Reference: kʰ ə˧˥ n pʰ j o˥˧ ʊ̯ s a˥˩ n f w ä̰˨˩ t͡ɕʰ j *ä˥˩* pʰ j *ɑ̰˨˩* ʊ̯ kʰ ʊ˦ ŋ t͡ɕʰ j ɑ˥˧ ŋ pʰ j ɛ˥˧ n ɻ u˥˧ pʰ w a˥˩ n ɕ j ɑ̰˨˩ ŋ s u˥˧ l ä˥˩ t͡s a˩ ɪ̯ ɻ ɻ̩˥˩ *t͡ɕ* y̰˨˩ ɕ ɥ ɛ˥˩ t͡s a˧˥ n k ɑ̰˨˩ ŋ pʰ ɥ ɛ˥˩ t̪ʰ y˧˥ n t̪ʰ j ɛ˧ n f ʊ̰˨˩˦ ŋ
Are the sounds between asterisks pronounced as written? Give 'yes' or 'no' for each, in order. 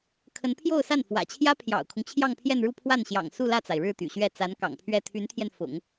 no, yes, no

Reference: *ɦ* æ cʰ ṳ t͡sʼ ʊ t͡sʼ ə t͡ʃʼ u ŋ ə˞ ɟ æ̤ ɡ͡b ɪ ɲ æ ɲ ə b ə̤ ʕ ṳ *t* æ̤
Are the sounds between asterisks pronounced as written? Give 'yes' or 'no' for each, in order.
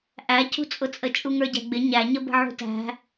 no, yes

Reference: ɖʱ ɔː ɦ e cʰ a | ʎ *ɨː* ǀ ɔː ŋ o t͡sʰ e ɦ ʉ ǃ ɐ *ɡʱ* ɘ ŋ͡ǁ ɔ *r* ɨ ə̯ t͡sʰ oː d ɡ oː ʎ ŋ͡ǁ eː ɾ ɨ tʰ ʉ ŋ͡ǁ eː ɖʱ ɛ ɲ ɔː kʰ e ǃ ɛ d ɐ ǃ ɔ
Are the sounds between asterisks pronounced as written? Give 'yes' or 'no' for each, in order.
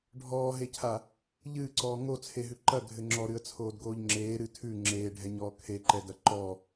yes, yes, no

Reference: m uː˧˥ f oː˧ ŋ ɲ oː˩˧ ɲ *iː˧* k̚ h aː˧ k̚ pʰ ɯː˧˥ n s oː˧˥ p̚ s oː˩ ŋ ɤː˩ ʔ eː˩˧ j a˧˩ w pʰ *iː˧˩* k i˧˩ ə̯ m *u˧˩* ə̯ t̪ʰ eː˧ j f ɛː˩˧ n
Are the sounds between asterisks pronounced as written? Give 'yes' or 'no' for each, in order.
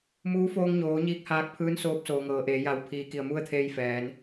yes, no, no

